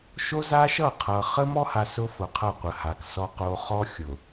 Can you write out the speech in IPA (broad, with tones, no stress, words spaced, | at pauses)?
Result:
ʃo˦za˦ʃʌ˦˨ qʰʌ˨ χə˦mɔ˦ha˨s ʊ˦fʊ˨qʰʌ˦˨ qʷə˨ha˨ksɔ˦ qo˦ χɔ˦xʲʊ˨